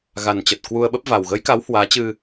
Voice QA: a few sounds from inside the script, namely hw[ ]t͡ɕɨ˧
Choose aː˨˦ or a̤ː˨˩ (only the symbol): aː˨˦